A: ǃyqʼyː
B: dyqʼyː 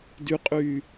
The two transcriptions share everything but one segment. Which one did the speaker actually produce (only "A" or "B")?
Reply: B